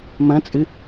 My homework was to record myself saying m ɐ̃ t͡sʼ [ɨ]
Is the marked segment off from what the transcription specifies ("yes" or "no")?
no